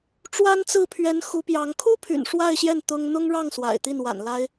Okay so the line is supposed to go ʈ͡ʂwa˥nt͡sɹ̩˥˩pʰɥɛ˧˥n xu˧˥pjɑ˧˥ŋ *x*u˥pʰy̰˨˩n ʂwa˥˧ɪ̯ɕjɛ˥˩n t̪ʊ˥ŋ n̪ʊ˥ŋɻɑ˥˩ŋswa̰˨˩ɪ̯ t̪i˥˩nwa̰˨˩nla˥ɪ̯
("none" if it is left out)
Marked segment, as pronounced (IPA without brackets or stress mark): kʰ